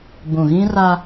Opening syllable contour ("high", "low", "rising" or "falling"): low